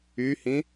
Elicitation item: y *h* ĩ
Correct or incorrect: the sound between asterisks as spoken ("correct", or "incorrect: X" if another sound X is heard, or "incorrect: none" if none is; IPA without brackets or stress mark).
correct